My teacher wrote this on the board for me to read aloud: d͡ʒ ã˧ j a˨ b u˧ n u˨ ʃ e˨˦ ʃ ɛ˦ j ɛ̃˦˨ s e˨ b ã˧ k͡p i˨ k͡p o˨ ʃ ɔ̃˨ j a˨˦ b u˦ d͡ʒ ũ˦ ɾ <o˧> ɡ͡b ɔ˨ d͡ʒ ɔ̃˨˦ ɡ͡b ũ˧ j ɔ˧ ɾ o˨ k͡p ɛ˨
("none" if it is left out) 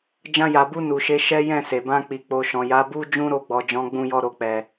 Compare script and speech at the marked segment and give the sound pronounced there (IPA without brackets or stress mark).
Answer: o˧